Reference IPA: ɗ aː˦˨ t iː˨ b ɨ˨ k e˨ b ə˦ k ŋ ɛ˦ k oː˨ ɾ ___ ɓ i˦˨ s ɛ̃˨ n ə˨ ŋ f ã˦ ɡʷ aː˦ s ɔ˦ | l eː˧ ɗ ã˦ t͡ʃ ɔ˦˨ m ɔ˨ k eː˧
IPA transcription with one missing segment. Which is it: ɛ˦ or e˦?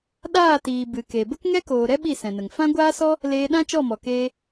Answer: ɛ˦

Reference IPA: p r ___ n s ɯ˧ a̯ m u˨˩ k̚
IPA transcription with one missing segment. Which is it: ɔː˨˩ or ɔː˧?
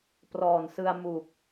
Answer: ɔː˨˩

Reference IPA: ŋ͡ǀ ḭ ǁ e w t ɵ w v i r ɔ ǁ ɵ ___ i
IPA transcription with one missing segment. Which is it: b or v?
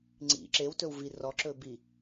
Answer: b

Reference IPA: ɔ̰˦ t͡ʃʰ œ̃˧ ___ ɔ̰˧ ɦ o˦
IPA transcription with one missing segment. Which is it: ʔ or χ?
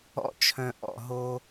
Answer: ʔ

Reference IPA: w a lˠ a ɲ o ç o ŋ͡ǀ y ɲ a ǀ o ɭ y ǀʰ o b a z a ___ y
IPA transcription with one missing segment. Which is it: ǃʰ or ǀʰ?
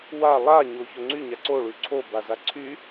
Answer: ǀʰ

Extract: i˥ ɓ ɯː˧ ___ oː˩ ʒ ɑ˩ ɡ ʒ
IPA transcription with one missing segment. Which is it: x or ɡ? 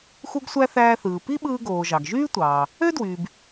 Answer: ɡ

